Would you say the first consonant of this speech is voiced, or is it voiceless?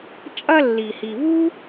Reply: voiceless